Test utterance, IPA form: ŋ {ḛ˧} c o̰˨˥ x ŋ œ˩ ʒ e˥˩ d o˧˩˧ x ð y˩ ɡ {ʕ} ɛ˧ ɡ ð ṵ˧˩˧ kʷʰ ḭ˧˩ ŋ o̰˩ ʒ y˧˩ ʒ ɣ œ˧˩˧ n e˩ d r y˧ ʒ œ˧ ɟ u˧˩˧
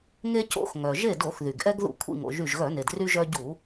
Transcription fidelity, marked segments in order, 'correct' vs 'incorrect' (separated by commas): incorrect, incorrect